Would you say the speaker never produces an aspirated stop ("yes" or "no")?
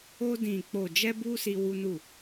yes